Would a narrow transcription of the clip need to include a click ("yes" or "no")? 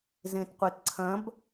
yes